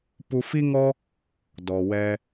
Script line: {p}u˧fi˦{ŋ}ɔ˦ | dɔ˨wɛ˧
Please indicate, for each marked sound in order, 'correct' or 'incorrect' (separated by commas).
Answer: correct, correct